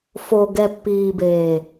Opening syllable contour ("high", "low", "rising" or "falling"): low